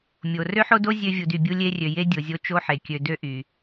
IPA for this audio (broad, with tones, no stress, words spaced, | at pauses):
mʲo˩ rø˥ħo˥do˥ zʲø˦vʲu˨dy˨ bʲu˦lʲe˦rʲø˨ je˥dʲo˨zʲo˦ t͡ʃo˦ħe˩kʲø˨dø˥ ʔy˩